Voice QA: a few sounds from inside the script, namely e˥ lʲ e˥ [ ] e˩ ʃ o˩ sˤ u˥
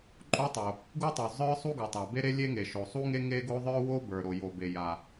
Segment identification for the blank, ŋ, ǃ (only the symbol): ŋ